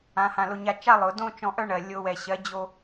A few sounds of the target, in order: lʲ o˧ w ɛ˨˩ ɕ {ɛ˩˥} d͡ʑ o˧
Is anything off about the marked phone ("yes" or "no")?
yes